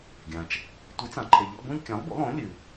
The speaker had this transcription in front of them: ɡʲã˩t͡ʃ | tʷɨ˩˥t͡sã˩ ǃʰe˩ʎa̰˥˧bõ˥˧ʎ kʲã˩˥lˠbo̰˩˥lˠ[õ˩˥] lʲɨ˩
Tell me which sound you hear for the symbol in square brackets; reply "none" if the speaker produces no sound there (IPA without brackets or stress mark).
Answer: õ˩˥